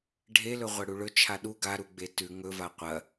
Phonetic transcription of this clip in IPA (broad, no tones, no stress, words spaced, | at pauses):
ɖʱe lɵʁʷɐɽuɭɵ t͡ʃʰaɗu ɡaɾuɡ͡be tʉ ŋɵva qʷɐ